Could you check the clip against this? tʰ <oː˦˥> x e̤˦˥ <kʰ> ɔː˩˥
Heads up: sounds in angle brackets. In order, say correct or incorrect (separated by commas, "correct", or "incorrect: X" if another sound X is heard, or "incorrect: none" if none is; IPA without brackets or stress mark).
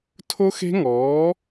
incorrect: o˦˥, incorrect: ŋ